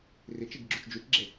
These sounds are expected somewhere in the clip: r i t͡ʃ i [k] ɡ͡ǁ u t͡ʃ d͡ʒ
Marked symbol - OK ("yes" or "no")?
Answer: no